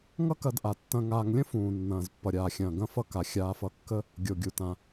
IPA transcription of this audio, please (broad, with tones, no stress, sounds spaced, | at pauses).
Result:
ŋ ʌ˦ k ɐ˨ d ʔ a˩ tː ɐ̃˨ ŋ aː˨ ŋ lʲ ə̃˥ f ũː˩ nː ɐ̃ː˩ z pː ʌ˩ ɾʲ aː˩ xʲ ɐ̃ː˩ ɡ ɐ̃˦ f ʌ˦ k a˩ xʲ aː˨ f ʌ˨ kː ə˦ | ɡʲ o˩ ɡʲ u˩ t ã˩